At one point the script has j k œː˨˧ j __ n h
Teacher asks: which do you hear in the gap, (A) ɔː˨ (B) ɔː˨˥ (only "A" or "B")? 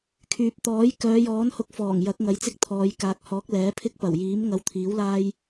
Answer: B